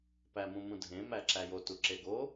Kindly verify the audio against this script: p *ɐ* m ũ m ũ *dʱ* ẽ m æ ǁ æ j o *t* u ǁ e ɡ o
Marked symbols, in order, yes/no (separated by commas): no, yes, yes